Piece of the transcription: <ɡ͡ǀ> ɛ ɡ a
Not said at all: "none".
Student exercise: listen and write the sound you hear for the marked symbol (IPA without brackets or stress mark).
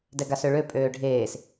d